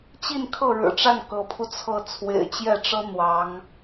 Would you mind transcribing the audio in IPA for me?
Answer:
t͡ɕ i˥˧ n kʰ ɤ˥˩ ɻ ɻ̩˨˩ ʈ͡ʂ a˥˩ n k ɤ˧˥ pʰ u˧ t͡sʰ ɤ˥˩ t͡sʰ w ḛ˨˩ ɪ̯ t͡ɕ j ɛ˥˩ ʈ͡ʂ ɤ˥ n̪ w ɑ˧˥ ŋ

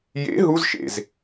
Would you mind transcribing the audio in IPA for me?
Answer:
j ḛ ɦ u z ʃ ḛ z

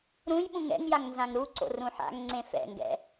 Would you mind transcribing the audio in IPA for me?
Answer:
ɾ ũ j ɓ ũ ŋ ɛ̰ ŋ j a ŋ n z ã ŋ ɾ u ǀ o̰ r ũ ħ a̰ ŋ ŋ͡ǀ ẽ f ɛ̰ ŋ ɡ ɛ̰

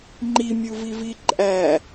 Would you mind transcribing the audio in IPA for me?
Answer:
ŋ͡ǃ i mʲ u v i v i ǃʼ æ

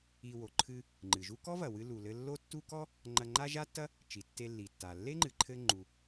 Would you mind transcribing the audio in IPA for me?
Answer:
i˧ w o˩ ǃʰ ɨ˧ | ŋ͡ǃ ɨ˩ ʒ u˥ k ɔ˥ v ɐ˩ w ɨ˧ l u˩ l ɘ˧ lː o˥ tː u˥ k ɔ˥ | ŋ͡ǃ ɐ˧ ŋ͡ǃ a˥ ʒ a˥ tː ɐ˥ | t͡ʃ i˩ tː e˧ lː i˩ tː a˩ lː e˥ ŋ͡ǃ ɨ˩ ǃʰ ɘ˧ ŋ͡ǃ u˩

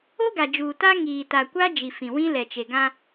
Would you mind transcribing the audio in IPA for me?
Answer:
o˦ ɡ a˨ d͡ʒ uː˨ t a˦ ŋ iː˨ t a˨ kʷ a˦ d͡ʒ i˨ f ĩ˨ w ĩ˦ l ɛ˨ t͡ʃ e˨ ɡ ã˦

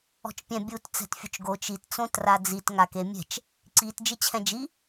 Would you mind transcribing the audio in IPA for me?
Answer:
ɔ̤ t͡ʃ pʲ ɛ̃ bʲ u t t͡s ɛ̤ t fʲ ʊ t͡ʃ ɡ o t͡ʃ i t t͡s õ t r a d͡z i t ŋ a k e mʲ ɛ̤ t͡ʃ | ǀ i t d͡ʒ ɪ t͡ɕʰ ɛ̃ d͡ʒ i

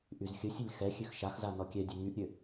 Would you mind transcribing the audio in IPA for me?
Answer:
ʔ y z xʲ ə sʲ ə lʲ x ɛ xʲ ø x ʃ a x z a n ɔ kʲ ɛ dʲ ø ŋ y ʔ ɾʲ ø

